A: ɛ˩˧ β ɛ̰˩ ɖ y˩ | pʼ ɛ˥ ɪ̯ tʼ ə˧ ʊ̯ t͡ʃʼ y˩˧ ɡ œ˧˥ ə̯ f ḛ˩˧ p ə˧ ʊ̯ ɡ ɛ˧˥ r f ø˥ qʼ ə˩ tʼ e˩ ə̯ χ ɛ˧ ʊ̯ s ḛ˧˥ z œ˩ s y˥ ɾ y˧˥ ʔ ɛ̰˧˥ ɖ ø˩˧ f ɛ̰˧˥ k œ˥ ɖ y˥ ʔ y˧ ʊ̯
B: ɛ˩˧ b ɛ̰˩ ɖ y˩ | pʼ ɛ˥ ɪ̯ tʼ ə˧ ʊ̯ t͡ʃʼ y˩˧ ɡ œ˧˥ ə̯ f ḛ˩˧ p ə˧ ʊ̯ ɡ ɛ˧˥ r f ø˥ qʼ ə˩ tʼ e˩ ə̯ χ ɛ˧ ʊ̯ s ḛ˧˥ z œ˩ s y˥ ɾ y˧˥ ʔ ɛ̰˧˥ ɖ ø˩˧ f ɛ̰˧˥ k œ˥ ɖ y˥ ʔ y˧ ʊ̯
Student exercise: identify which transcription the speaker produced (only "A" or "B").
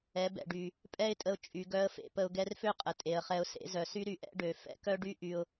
B